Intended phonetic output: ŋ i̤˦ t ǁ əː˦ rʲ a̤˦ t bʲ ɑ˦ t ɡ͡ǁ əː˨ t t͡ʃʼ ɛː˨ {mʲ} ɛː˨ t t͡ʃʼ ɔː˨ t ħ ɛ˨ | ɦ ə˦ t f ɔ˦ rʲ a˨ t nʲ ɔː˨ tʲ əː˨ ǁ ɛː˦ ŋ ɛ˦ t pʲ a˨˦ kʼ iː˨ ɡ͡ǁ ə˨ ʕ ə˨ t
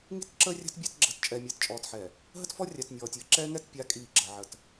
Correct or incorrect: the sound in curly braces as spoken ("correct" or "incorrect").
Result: correct